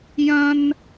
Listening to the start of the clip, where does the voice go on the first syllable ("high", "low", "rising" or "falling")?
high